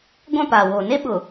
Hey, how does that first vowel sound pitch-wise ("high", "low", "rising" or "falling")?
falling